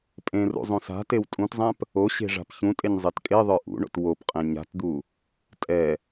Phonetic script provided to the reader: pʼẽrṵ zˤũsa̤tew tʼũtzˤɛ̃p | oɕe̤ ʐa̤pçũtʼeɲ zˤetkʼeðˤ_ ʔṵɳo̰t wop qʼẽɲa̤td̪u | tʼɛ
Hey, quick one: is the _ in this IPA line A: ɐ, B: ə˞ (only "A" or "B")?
B